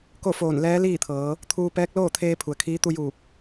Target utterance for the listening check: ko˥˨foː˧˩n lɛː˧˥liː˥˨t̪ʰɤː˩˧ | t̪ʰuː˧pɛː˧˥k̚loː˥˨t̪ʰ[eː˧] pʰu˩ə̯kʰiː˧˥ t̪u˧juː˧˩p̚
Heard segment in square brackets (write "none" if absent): eː˧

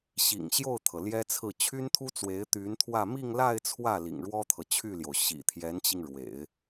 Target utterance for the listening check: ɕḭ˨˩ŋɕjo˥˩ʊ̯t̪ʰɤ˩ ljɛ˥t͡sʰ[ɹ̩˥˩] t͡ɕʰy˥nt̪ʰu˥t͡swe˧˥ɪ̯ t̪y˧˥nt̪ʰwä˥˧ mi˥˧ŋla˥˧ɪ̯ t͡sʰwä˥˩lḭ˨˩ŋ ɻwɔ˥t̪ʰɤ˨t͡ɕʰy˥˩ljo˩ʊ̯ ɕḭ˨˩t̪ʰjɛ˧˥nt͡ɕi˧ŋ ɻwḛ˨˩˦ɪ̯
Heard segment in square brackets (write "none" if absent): ɹ̩˥˩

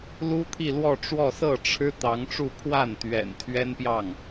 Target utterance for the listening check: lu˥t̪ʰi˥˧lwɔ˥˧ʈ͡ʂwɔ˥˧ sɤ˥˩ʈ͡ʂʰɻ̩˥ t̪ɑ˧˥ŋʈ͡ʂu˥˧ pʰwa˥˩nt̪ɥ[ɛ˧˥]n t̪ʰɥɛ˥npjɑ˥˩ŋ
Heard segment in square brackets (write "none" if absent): ɛ̰˨˩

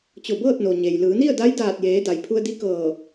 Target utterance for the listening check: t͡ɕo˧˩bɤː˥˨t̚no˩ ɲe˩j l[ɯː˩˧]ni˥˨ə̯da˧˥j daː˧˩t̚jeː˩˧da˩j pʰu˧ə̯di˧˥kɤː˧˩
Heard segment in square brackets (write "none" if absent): ɯː˩˧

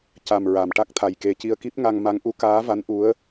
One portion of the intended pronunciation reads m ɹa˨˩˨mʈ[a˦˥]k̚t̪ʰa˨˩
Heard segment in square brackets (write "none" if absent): a˦˥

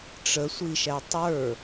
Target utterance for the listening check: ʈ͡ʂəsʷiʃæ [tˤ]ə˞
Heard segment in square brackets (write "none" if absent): tˤ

